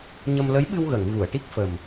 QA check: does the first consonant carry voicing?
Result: yes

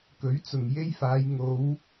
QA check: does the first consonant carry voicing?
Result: no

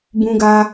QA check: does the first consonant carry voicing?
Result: yes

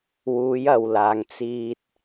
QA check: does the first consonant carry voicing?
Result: yes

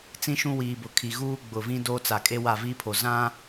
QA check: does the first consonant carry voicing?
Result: no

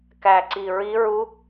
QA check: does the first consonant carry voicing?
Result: no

